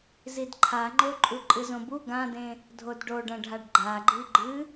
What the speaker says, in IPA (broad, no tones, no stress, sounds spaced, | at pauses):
z i d ǃʰ a ŋ͡ǃ o ǃʼ u ǃʼ ɨ z õ b u ɡ ã d ẽ | dʱ o d ɖ o ɖ ɐ̃ ɖʱ a ɖ ɡ͡ǃ a ɡ͡ǃ i ɡ͡ǃ ɨ